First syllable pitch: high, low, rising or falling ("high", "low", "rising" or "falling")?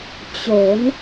rising